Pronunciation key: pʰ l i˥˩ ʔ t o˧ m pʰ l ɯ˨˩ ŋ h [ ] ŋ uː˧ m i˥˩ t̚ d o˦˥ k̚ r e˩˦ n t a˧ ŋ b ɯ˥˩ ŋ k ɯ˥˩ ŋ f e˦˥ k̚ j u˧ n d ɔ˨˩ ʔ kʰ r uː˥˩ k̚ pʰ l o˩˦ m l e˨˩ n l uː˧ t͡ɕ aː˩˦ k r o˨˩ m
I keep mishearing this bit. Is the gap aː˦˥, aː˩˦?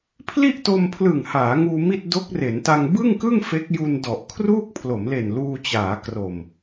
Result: aː˩˦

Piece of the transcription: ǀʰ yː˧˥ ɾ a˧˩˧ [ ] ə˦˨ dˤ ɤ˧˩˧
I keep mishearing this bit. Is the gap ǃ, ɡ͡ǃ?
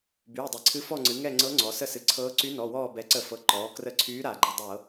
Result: ɡ͡ǃ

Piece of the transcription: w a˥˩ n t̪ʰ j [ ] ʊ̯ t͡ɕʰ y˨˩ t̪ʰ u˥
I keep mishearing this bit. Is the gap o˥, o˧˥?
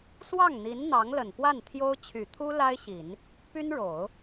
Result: o˥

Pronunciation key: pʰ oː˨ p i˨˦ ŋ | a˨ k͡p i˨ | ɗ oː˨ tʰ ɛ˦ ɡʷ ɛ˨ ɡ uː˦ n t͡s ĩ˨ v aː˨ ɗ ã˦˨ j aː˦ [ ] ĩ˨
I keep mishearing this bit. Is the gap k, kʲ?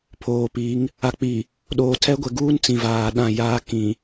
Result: k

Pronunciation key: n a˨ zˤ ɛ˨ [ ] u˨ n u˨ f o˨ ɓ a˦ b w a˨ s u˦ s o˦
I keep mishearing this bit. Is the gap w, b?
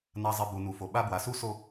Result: b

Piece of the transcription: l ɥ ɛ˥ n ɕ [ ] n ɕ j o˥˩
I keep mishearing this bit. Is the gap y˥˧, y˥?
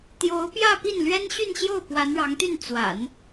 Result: y˥˧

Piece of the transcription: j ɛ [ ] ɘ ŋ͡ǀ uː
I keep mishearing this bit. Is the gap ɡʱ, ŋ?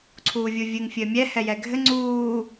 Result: ɡʱ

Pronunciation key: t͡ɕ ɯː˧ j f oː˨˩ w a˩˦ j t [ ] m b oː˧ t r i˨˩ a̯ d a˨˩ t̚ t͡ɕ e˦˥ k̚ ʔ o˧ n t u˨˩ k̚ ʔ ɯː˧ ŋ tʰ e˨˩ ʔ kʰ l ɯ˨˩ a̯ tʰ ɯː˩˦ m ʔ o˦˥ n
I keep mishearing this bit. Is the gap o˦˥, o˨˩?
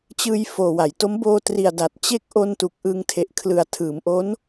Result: o˦˥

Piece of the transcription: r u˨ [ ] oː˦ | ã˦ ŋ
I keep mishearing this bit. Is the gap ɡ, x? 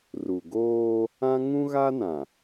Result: ɡ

